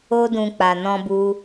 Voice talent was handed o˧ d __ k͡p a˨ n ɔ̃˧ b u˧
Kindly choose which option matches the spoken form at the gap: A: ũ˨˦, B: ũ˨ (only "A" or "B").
B